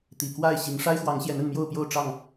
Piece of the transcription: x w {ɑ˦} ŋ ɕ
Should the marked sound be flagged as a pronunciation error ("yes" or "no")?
yes